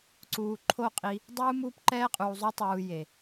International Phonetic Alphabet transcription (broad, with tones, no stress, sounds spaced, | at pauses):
ǀ uː˨ ǃʰ o˦˨ qʼ i˧ | dˤ uː˦ m uː˦ p ǃ ɛː˦ qʼ uː˨ zˤ u˧ tˤ uː˨ j e˨